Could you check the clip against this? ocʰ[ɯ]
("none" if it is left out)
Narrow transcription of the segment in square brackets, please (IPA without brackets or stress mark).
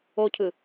ɯ